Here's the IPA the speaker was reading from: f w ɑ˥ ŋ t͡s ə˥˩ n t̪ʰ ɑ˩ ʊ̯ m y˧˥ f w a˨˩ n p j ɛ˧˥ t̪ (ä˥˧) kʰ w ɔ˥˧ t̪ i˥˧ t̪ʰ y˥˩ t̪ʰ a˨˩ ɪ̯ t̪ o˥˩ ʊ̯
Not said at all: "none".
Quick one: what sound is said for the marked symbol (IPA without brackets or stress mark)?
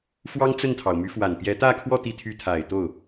ä˥˧